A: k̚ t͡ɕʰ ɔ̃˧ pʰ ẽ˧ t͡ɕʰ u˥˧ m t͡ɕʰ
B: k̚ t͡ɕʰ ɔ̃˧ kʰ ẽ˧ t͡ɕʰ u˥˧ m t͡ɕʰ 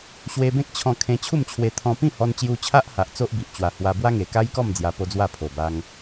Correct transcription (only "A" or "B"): B